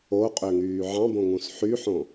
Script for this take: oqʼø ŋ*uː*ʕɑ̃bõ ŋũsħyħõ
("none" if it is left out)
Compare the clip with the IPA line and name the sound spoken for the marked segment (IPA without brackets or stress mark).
yː